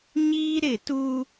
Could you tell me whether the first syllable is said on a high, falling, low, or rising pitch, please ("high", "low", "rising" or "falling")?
high